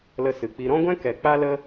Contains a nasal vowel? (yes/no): yes